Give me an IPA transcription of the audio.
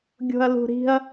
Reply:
ɡʲ o̤ ɐ̯ l ṳ ɾ i̤ ɐ̯

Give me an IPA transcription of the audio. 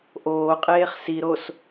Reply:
ʔ oː qʼ eː χ s i ɾ o s

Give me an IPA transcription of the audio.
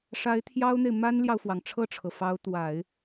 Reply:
ʂ a˧˥ ɪ̯ t̪ʰ j ɑ˥ ʊ̯ n̪ e˨ ɪ̯ m a˥ n l j ɑ˨ ʊ̯ f w ɑ˩ ŋ ʈ͡ʂʰ ɤ˥˩ ʈ͡ʂʰ ɤ˩ f ɑ˧˥ ʊ̯ t̪ w a˨˩˦ ɪ̯

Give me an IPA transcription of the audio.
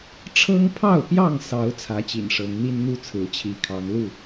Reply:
ʈ͡ʂʰ ɤ˦ ŋ pʰ ɑ˥˨ ʊ̯ p j ɑ˥˨ ŋ s ɑ˨˦ ʊ̯ t͡sʰ ä˨˦ t͡ɕ ḭ˨˩ n ʂ ɤ˨˦ ŋ n̪ i˦ n n̪ u˦ t͡sʰ ɹ̩˨˦ t͡ɕʰ i˨˦ kʰ ɑ˨˦ ŋ l u˥˨

